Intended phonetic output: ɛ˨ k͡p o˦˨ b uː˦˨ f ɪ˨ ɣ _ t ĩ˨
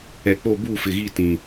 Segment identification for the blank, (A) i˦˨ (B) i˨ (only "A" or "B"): A